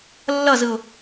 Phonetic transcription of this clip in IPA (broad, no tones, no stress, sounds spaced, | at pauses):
lː ʌ z ɯ ʊ̯